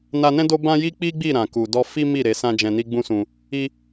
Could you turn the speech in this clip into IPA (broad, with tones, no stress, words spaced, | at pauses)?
na˧nɛ̃˦ do˦bã˦ji˦ k͡pi˦ɡ͡bi˦˨ ɾã˨ku˨dɔ˧ fi˦mi˦˨ ɾe˨˦sã˦ d͡ʒɛ̃˧ni˦ɡ͡bũ˦sũ˧ | i˧